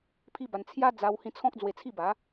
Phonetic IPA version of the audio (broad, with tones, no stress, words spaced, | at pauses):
pʰi˦ba˧n t͡sʰja˦d͡za˧w hĩ˧t͡sʰɔ̃˦k̚ d͡zwe˧t͡sʰi˥˧ba˨˦